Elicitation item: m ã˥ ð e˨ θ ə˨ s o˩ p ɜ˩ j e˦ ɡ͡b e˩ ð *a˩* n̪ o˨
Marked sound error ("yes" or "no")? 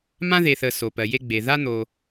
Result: yes